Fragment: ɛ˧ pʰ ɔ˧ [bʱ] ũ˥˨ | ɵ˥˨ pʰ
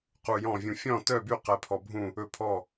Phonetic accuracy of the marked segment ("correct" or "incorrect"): correct